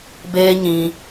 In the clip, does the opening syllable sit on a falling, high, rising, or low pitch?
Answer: high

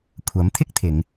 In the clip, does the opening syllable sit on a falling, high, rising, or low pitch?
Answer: rising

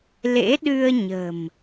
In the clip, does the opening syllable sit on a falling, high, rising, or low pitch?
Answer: rising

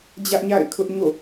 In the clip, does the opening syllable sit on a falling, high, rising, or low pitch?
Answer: high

